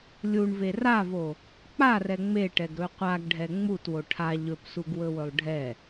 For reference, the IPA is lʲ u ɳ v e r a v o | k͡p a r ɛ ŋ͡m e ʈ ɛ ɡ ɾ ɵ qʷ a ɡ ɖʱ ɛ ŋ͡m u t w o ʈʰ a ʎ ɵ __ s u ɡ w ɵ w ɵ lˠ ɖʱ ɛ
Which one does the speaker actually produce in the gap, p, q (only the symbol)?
p